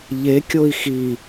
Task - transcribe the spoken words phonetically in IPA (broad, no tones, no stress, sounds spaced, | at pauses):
ʎ e kʲ o i̯ x i